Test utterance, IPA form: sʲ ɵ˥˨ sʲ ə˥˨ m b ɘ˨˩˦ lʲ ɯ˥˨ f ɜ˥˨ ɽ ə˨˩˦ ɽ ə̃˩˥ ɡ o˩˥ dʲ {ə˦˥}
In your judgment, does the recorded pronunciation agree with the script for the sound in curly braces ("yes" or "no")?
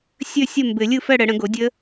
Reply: yes